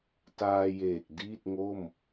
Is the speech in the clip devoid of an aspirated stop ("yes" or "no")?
yes